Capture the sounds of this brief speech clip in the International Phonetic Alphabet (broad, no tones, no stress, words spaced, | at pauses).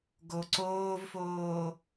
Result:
ɡoǀoːvfoː